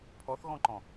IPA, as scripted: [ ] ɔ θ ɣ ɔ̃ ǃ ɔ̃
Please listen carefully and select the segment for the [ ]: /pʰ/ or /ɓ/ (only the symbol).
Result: pʰ